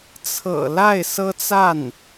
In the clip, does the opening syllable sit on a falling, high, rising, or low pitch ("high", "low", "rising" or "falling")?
low